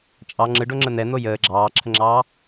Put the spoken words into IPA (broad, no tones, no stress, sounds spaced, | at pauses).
t͡ʃʼ ɑ ŋ͡ǁ ɯ ɖ o ŋ͡ǁ ə n̪ ɛ n̪ o j əː ɡ͡ǁ ɑː ǁʰ ə ŋ͡ǁ ɑː